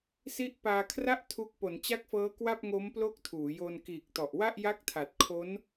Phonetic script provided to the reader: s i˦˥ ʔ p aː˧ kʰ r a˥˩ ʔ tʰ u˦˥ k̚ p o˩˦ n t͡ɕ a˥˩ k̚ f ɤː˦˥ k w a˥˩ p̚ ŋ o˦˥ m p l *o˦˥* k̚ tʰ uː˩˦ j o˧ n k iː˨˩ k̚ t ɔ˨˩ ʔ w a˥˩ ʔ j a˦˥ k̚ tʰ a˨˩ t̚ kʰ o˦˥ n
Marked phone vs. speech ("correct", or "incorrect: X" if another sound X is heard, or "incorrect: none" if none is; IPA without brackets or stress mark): correct